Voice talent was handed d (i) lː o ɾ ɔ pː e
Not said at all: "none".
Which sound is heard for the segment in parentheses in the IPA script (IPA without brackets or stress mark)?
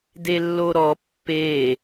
e